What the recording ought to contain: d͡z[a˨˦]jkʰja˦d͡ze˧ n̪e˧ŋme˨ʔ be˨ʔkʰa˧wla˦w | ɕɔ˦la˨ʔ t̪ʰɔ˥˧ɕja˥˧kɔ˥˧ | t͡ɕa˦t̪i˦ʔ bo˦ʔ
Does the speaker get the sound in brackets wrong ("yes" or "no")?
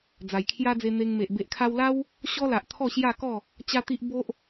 yes